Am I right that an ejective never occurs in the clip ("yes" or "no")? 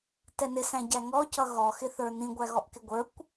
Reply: yes